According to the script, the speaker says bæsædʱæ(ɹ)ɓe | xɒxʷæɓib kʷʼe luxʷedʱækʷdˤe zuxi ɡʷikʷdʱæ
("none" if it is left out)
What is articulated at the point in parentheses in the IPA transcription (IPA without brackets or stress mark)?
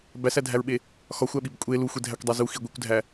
ɹ